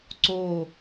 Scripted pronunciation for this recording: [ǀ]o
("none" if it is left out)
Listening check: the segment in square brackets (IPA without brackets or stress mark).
ǀ